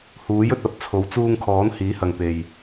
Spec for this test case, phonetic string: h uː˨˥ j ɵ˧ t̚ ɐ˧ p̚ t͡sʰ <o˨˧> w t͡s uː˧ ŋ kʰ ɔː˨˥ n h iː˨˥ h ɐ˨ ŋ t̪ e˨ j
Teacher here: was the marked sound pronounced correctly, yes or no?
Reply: no